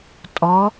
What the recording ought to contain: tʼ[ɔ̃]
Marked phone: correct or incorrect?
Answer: incorrect